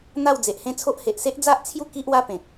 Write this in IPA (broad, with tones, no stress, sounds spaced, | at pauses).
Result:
n̪ a˥˧ w d͡z e˨ ʔ h ẽ˥˧ t͡sʰ o˦ ʔ h e˨ ʔ s e˦ ʔ d͡z a˦ ʔ t͡sʰ j u˥˧ k i˦ ʔ w a˦ p ẽ˨ k̚